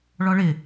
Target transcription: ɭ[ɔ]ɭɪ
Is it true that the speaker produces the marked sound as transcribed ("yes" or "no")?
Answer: yes